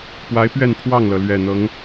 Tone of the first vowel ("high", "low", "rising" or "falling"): rising